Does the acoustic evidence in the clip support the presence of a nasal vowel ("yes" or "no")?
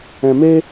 yes